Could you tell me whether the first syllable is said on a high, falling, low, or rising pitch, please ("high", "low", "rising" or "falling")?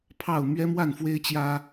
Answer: falling